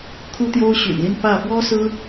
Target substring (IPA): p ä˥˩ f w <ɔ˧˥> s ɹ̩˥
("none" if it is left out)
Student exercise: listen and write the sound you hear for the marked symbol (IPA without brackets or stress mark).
ɔ˥